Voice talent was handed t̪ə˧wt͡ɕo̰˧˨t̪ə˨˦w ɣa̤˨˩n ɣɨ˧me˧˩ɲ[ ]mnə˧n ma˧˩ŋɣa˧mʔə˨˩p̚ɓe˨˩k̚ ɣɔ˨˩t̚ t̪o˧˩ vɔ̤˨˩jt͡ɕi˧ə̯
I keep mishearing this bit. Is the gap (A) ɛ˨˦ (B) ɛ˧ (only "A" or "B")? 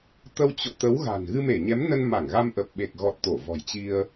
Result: A